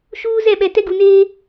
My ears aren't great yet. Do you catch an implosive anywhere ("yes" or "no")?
yes